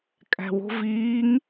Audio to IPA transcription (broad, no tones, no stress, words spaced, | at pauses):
kʼæ̤wo̤ viːŋ